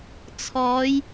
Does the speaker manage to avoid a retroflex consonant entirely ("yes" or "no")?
yes